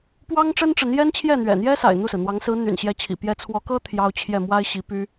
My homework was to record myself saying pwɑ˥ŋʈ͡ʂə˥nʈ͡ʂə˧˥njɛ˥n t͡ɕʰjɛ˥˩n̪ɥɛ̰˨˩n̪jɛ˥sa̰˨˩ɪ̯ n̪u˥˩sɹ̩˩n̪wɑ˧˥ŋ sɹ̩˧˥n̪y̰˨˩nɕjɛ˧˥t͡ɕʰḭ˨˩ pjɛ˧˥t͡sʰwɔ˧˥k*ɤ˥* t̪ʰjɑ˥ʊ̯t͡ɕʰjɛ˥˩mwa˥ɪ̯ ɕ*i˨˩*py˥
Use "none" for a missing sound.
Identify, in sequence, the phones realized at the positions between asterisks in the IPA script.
ɤ˥, i˧˥

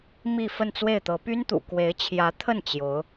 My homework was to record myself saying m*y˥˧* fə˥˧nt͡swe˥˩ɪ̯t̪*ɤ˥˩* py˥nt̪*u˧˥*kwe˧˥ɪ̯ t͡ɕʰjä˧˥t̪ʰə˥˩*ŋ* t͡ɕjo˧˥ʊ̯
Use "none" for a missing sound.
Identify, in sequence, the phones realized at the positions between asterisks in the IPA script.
i˥˧, ɤ˧˥, ṵ˨˩, n

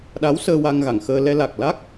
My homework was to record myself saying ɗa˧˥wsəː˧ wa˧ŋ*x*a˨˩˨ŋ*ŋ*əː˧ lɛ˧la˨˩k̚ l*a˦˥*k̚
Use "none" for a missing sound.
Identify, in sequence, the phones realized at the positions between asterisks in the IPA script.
ɣ, x, a˦˥

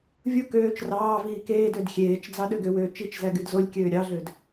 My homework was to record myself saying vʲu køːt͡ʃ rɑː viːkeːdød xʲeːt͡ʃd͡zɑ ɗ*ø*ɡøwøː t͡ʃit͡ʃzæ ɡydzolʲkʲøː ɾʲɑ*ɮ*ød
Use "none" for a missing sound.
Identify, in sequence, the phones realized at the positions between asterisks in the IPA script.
ø, ɮ

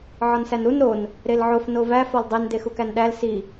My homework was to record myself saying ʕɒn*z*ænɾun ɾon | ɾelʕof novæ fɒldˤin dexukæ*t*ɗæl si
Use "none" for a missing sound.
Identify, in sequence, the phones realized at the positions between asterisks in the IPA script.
s, n

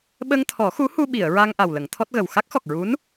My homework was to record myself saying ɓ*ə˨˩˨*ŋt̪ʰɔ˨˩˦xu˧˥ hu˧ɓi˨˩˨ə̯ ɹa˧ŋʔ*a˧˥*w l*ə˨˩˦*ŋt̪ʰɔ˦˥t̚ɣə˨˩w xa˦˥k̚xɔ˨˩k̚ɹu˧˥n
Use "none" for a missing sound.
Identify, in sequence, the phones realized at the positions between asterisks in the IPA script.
ə˧, a˨˩, ə˨˩˦

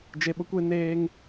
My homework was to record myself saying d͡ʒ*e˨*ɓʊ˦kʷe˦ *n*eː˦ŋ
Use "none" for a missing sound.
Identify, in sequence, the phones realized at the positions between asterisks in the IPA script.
e˨, n

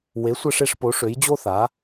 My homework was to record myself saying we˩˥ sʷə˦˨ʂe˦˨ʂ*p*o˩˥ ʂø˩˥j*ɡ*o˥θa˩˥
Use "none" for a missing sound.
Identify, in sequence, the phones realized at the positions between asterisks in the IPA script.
p, d͡ʑ

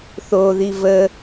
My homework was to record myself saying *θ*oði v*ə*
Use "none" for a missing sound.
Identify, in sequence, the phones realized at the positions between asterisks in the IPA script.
θ, ə

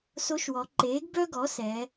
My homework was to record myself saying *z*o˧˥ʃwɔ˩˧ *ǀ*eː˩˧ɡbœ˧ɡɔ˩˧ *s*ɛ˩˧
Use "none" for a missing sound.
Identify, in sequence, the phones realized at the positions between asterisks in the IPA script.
s, ǃ, s

